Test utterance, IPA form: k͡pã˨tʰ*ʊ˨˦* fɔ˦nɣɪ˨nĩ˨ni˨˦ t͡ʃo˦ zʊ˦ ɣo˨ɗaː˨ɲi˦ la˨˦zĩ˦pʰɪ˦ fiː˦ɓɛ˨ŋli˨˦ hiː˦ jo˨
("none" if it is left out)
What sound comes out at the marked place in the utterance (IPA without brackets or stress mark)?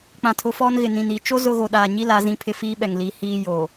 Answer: ʊ˨˦